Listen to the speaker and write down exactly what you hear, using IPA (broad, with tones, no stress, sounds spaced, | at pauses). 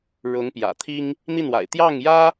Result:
ɻ ʊ˧˥ ŋ p j ä̰˨˩ t̪ʰ i˥ ŋ | n̪ i˥˩ n w a̰˨˩ ɪ̯ t̪ j ɑ˥˩ ŋ j ä˥